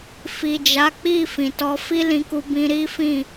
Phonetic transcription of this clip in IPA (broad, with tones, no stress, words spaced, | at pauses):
fi˨d͡ʒa˨˦k͡pi˦˨ fĩ˨tɔ˧ fi˦lĩ˧ku˧bĩ˧ ɾi˦fĩ˦˨